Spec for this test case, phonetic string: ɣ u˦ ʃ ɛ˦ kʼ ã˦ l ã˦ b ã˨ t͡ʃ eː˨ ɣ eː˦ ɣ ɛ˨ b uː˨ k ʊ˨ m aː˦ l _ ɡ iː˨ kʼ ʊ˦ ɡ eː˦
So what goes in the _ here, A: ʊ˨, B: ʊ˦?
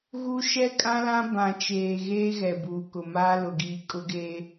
A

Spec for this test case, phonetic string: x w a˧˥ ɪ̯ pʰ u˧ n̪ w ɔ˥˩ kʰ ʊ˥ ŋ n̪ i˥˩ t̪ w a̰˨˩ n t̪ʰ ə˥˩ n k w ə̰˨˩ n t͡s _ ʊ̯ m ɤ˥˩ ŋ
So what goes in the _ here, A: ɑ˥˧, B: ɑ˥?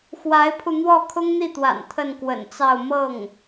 A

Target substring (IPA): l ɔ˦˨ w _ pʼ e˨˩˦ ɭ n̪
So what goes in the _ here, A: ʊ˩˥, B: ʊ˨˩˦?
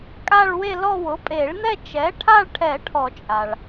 A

